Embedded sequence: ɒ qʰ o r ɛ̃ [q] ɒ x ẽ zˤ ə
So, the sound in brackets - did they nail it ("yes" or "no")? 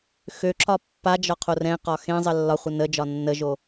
yes